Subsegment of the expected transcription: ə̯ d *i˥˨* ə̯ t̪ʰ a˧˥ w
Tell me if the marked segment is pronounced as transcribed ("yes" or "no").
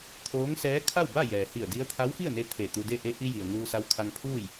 no